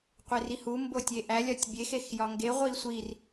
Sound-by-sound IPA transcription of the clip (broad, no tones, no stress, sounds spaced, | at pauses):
qʷ e r i h u m b o tʲ e ʔ æ lʲ ɒ tʲ bʲ e x e x j ɒ ŋ ɡ e ʁʷ i sʷ i r